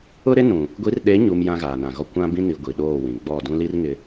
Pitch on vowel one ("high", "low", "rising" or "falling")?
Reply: high